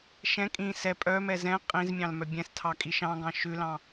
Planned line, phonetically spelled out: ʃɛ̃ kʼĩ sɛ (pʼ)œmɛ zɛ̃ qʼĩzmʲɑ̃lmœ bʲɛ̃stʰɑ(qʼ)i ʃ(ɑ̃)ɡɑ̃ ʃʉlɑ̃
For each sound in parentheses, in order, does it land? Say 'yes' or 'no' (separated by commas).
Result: yes, no, yes